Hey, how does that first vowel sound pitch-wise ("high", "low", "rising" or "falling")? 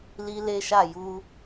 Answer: high